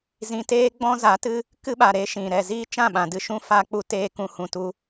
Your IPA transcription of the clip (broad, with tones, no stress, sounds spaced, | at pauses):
z ĩ˧ t eː˦ ɡ͡b ɔ̃˦ z a˨˦ t ɨ˦ | k ɨ˦ ɓ a˨ ɾ e˦ ʃ ĩ˨ ɾ ɛ˨ z iː˦ t͡ʃ ã˦˨ ɓ ã˨ d ɨ˦˨ ʃ ũ˦ f a˧ k͡p u˧ t eː˧ k ũ˨ h ũ˨ t u˧